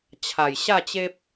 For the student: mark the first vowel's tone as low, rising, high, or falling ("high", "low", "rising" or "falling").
low